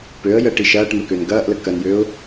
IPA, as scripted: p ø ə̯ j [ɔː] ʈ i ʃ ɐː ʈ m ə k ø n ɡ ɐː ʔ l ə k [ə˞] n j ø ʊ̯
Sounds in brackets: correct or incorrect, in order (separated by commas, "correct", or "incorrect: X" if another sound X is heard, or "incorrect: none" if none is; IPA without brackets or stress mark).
incorrect: əː, incorrect: ɐ